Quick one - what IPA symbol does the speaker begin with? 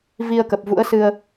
v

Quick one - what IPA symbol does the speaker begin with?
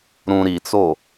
ɾ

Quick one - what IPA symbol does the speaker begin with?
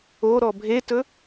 o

